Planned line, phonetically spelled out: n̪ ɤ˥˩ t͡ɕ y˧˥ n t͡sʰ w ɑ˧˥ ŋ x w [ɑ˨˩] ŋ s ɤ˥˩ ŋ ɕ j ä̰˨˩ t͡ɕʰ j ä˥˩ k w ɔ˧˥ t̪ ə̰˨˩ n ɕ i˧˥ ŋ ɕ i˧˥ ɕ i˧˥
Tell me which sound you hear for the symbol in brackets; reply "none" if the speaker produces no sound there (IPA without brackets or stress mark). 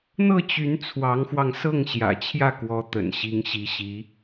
ɑ˧